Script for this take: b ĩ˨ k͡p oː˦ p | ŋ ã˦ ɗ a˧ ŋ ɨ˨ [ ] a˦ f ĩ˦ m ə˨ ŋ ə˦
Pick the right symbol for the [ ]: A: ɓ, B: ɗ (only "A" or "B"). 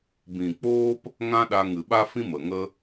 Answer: A